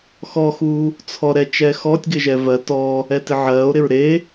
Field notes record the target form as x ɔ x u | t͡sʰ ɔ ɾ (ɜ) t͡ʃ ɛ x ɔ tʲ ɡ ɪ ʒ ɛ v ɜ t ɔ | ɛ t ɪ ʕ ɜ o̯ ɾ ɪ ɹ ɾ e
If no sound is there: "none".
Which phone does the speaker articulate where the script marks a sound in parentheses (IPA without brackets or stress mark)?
ɛ